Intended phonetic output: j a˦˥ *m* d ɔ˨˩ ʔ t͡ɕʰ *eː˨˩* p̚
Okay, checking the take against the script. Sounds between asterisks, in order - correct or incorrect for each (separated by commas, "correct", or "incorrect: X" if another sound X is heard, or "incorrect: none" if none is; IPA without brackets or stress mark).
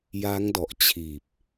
incorrect: ŋ, incorrect: iː˨˩